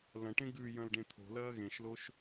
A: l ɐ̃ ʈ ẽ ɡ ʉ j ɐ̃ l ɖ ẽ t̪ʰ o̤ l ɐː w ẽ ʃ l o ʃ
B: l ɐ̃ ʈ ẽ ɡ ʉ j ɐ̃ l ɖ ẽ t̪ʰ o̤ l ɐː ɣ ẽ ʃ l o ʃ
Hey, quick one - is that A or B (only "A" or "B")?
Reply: B